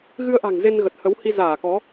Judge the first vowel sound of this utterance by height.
high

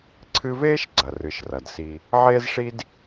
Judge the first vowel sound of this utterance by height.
high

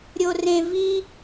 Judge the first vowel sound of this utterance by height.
mid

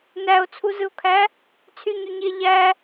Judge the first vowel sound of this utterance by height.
low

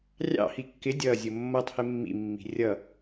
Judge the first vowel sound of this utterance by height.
low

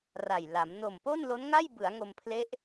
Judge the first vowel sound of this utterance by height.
low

